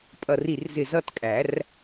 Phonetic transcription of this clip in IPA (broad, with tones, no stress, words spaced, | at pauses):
pʼʌ˧˩ri˧˩rzɪ˧˩ zʌ˦tkʼæ˨˩˦r